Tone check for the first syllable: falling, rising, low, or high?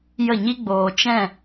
falling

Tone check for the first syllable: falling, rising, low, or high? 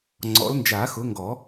rising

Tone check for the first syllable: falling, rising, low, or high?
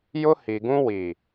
high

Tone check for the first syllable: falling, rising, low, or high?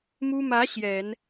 high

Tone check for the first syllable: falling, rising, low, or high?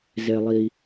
low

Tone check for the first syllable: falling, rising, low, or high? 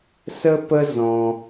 high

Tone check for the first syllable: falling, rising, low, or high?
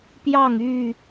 falling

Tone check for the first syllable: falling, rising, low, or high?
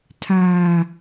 low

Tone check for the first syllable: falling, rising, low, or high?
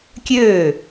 falling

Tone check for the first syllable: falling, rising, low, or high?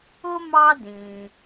high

